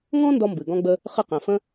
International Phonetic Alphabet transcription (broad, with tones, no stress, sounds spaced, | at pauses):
ŋ ɔ̃˥ n d ɔ˥ m b ɨ˩ ɡ ɔ̃˥ ɡ͡b ə˥ | χ ɨ˥ q ɛ̃˩ f ə̃˥